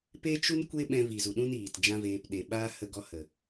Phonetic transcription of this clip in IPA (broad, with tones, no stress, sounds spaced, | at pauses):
p e˦ t͡ʃ u˦ n kʷ e˦ ɓ ɛ̃˧ v i˨ z u˨ ɗ ũ˦ n iː˨ t d͡ʒ ã˦ v eː˧ p ɗ e˨ ɓ aː˦ h ə˧ ɡ ɔ˧ h ə˨